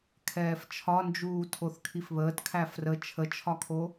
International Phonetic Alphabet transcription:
kʰ ɛː f t͡ʃʰ ɒ n d͡ʒ uː tʰ o θ kʰ i f β əː t kʰ æ f r ə t͡ʃʰ ə t͡ʃʰ ɒ kʰ o

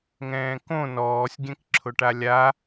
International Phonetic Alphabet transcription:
ŋ ɛ̃ː k õ n ɔː sʲ ɡʲ ɛ̃ k ǁʰ ʊ ʈ a lʲ a

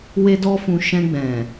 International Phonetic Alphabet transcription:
w e˦ d ɔ˦ f ũ˧ ʃ ɛ̃˧ ɡ͡b ɛ̃˨

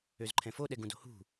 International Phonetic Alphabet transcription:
ø z ǃʰ ɛ̃ f o ɗ ɛ ɡ ũ d o̤ h ṳ

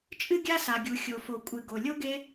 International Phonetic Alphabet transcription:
t͡ʃʼ ɨ˥ ɡʲ a˥ s a˩ ɡʲ u˩ xʲ o˩ f o˩ kʷʼ ɨ˩ ɡ o˩ lʲ o˥ ɡ e˥

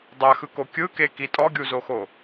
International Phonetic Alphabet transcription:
dˤ a x ɯ k o kʲ ɯ k e k i tʼ ɔ ɡʲ u z o x o

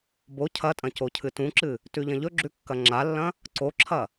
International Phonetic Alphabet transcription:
b o cʰ ɐ tʼ ɐ̃ c o cʰ ɨ t ũ ǁ ɨ | t ʉ ʎ ɐ̃ ʎ ɵ ɡ͡ǁ ʉ kː ɐ ŋ͡ǁ a lː ɐ̃ | ǀ o ǁʰ ɐ

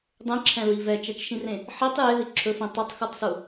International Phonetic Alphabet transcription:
dˤ ẽ ǁʰ ɛ̃ ɹ i v ɛ t͡ʃ ɛ t͡ʃ ʃ ĩ r ẽ | ħ i tˤ j e ð i ǁʰ ɵ f ĩ tˤ ɵ tˤ x u tˤ s u

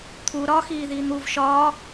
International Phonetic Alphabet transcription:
t̪ʰ u ɾ ɒ x iː ð iː n̪ u v ʃ ɒː

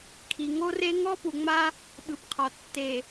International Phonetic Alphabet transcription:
kʰ i˨ ŋ o˦ r e˦ ŋ ɔ˦ p u˨ ŋ͡m a˦ | ɓ ɯ˨ p qʰ ɔ˨ tː e˨

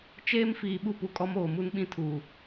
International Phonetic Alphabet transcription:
t͡ʃ eː˦ m f iː˨ ɓ u˦ p u˨ kʼ ɔ˦ m oː˨ m u˦ n ɓ ĩ˦ tʰ uː˨

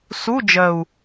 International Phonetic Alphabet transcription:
s u˧˥˧ d͡ʒ ɜ˨˩ u̯

